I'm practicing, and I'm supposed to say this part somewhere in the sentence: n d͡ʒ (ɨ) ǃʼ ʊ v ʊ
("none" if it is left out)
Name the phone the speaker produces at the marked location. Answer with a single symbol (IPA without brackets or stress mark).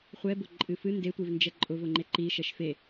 ɛ